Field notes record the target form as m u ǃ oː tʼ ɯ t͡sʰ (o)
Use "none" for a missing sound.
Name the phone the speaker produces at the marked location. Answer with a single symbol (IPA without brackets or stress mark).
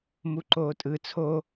o